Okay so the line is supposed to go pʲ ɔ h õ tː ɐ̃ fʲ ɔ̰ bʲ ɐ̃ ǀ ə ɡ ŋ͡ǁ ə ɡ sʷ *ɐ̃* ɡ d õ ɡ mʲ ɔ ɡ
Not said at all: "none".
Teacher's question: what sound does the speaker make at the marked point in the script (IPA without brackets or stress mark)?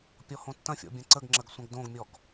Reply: ɐ̃